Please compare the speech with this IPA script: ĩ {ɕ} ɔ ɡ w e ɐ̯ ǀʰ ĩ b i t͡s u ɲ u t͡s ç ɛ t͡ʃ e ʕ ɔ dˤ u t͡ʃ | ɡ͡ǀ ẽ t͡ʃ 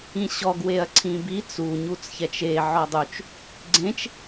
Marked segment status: correct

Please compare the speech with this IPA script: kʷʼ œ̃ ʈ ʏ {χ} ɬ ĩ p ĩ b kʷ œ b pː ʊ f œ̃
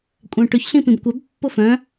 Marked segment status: incorrect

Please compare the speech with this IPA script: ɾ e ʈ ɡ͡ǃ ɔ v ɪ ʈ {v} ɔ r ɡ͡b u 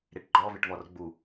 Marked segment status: correct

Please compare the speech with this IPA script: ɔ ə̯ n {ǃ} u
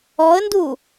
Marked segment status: incorrect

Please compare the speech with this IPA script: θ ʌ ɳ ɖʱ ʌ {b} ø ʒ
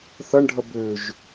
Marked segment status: correct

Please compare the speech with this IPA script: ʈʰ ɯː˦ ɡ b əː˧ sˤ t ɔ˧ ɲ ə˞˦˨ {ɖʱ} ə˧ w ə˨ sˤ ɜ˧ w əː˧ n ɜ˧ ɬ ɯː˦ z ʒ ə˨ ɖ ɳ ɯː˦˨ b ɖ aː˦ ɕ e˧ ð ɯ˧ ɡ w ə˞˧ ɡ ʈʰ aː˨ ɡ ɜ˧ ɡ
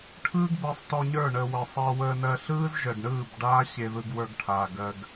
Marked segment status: incorrect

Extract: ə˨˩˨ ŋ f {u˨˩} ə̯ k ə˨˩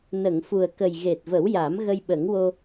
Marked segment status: correct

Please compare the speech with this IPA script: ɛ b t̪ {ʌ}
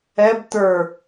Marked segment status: incorrect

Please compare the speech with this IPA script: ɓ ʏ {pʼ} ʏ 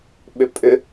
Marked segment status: correct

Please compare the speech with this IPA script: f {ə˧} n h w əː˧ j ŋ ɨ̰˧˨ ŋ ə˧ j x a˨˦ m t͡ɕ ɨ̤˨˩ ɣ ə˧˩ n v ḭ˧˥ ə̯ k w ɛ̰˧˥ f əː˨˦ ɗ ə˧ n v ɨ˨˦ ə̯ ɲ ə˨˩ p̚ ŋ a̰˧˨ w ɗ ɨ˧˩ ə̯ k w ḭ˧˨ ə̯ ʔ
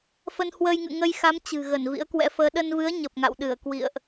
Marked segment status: correct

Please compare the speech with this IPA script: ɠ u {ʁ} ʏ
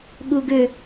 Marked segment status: incorrect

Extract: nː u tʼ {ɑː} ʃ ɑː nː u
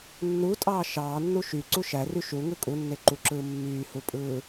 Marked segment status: correct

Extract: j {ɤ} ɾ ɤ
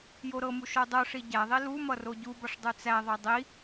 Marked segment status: incorrect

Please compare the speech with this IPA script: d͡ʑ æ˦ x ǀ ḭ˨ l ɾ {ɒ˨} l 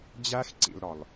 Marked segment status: correct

